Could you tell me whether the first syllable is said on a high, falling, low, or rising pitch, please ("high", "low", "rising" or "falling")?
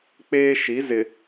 high